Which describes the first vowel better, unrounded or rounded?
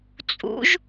rounded